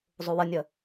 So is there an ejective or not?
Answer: no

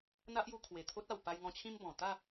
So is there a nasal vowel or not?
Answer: yes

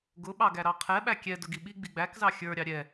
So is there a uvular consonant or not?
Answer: yes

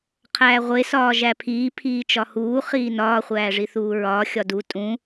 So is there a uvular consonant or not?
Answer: yes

